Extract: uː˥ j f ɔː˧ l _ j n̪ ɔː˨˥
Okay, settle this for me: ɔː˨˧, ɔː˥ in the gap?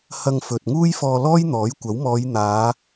ɔː˥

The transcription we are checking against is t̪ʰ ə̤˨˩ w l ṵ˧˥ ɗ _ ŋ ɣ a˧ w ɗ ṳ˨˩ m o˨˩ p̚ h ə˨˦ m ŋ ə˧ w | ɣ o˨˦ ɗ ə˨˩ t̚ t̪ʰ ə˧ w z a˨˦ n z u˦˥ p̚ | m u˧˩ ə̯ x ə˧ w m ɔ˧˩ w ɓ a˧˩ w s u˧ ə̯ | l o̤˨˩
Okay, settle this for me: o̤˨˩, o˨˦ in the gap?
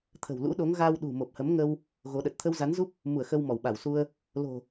o˨˦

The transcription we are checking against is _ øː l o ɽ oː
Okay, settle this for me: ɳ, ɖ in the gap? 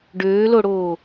ɖ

